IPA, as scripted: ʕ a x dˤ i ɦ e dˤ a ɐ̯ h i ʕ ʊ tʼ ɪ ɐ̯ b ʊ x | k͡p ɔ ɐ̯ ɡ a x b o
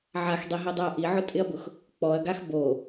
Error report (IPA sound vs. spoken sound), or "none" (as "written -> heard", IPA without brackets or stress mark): h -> ʔ